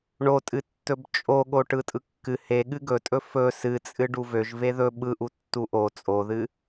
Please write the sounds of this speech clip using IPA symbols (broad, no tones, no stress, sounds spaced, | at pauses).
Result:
ɳ o tʼ ɨ tː ɵ b t͡ʃʼ o ɠ o ʈ ɯ tʼ ɯ kː ɨ h e ɠ ɨ ɡ ɵ tʼ ɵ f ɵ s ɨ t͡sʼ ɨ ɖ u v ø ʒ v e ð ɵ ɓ ɯ ʔ u tː u ʔ o t͡sʼ o ð ɨ